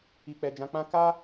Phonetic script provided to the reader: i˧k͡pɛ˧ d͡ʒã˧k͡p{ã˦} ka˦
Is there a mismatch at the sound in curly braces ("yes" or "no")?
no